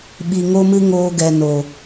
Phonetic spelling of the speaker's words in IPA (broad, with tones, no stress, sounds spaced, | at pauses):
ɓ i˨ ŋ o˦ m ɨ˦ ŋ oː˧ ɡ ɛ˨ n o˨